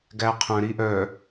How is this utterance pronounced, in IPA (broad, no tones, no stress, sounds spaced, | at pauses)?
ɡ æ qʰ œ̃ ɾ i ʔ œ